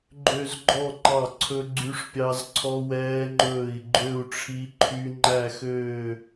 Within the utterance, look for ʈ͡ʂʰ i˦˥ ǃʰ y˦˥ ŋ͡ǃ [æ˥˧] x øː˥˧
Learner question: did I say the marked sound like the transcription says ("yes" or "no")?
yes